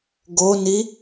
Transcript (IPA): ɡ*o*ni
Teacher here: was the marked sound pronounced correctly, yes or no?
yes